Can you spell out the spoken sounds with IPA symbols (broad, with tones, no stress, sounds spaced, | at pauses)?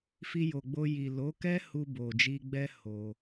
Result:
f i˧ j o˨ ɡ͡b o˧ j i˨ l o˨˦ k ɛ˦ h u˧ b o˨ d͡ʒ i˧ ɡ͡b ɛ˦ h o˧